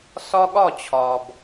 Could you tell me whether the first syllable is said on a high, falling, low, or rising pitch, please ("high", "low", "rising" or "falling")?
high